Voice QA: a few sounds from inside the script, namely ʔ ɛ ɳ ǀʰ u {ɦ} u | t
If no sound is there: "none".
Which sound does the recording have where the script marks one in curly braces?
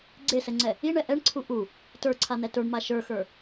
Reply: ʔ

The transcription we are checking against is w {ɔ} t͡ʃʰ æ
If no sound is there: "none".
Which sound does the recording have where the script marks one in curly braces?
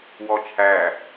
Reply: ɔ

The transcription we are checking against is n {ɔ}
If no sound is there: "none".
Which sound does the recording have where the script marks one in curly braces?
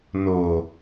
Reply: o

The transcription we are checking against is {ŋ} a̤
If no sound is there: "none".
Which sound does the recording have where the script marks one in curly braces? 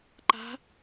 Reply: ǃ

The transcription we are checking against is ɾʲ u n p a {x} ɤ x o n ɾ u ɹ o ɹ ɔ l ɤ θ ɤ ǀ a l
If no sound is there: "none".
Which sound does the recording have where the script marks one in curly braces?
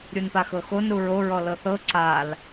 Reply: x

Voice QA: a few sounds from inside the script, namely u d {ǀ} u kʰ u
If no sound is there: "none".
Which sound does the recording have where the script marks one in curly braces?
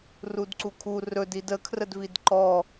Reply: ǀ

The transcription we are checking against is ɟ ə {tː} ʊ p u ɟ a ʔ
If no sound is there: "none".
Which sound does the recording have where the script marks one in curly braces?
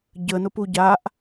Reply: n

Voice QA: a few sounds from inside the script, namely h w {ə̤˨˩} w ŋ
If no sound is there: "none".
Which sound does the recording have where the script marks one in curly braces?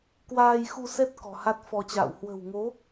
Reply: ə̤˨˩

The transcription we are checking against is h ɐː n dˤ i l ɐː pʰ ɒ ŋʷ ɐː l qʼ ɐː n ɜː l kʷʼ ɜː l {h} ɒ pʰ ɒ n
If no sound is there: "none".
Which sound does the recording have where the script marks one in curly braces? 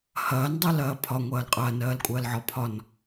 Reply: ʕ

